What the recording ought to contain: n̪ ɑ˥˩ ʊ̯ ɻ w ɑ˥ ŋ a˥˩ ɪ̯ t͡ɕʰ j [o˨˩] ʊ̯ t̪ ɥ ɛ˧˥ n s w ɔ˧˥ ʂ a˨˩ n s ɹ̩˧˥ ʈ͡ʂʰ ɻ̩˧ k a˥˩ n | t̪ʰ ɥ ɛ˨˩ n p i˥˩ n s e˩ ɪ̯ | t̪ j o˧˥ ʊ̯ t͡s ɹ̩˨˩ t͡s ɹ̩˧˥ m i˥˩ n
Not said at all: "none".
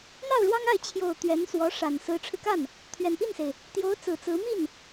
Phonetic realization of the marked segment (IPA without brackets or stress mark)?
o˨˩